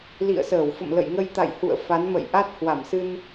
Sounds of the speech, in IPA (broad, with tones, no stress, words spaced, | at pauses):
lḭ˧˨ə̯səː˧˩w fə̰˧˨mlə̰˧˨jŋə˧j t̪a̰˧˨jhṵ˧˨ə̯ fa˨˦nmə̰˧˨j ʔa˦˥t̚hwa˧˩msɨ˧n